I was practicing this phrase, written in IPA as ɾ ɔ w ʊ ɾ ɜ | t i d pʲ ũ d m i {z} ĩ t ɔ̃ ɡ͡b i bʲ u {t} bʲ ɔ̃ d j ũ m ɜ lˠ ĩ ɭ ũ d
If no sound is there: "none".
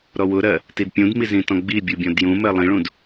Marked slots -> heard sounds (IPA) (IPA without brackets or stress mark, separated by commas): z, none